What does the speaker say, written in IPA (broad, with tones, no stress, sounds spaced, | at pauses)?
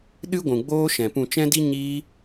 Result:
ɗ ɨ˦ ɡʷ ũ˨ ɡ͡b oː˦ ʃ ɛ̃˨ p ũ˨ t͡ʃ ɛ̃˦ d i˦ ɲ iː˧